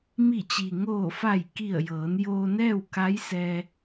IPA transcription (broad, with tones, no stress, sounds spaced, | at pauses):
m i˧˩ t͡ɕ i˩ ŋ oː˧˩ f a˧˩ j k i˧˩ ə̯ j ɤː˩˧ n j oː˧ n ɛː˥˨ w k a˧˥ j s ɛː˧